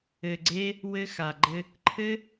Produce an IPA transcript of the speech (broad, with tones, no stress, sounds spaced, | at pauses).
ɘ˨ ɡ͡ǀ e˧ | w ɘ˧ x a˨ ɡ͡ǃ ɘ˧ | ǃʰ ɘ˦